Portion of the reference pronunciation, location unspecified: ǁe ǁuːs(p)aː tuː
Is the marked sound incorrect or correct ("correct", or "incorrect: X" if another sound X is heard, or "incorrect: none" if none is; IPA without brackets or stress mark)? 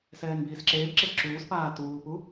correct